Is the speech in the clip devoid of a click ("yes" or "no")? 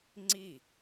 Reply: no